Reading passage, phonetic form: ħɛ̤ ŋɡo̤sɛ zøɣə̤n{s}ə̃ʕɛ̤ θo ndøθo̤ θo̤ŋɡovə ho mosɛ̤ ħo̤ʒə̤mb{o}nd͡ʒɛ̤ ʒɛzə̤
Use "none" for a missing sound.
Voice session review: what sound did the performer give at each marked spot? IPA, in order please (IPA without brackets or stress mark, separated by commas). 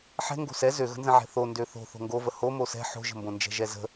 z, õ